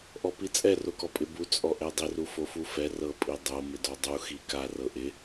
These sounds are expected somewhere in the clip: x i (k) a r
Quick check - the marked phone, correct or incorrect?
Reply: correct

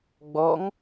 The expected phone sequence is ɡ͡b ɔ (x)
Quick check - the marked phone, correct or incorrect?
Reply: incorrect: ŋ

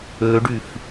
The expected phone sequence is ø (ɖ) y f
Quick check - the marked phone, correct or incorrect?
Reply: correct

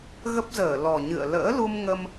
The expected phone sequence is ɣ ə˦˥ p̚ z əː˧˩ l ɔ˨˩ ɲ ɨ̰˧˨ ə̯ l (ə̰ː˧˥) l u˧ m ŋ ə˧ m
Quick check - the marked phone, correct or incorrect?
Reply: correct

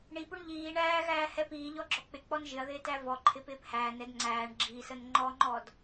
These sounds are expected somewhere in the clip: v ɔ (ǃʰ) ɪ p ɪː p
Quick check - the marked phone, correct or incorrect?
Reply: correct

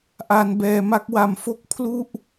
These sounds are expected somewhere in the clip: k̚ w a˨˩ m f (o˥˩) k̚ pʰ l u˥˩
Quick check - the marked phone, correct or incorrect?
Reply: correct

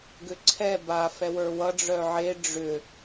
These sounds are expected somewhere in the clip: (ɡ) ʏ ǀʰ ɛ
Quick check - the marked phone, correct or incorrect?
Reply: correct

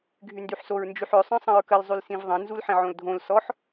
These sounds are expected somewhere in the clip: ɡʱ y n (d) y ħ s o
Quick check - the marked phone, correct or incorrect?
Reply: correct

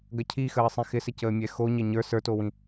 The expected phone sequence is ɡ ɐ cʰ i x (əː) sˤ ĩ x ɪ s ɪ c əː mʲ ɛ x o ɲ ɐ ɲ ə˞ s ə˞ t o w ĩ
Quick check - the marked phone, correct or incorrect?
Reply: correct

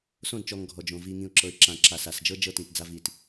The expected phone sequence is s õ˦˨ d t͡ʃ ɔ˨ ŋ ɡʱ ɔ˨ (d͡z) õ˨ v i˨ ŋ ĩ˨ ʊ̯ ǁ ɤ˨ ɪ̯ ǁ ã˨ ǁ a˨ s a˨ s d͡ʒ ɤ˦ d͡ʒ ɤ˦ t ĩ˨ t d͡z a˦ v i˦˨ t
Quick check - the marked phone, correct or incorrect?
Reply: incorrect: d͡ʒ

